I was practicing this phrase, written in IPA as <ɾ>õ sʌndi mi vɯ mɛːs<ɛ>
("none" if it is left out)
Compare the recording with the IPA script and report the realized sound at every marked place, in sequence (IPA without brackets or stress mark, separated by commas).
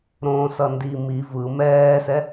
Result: ɾ, ɛ